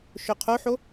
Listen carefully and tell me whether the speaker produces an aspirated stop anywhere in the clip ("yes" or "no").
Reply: yes